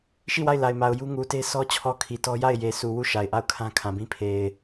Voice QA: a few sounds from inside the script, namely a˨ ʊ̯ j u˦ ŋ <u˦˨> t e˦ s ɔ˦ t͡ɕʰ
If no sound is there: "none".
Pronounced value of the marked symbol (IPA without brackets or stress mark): u˨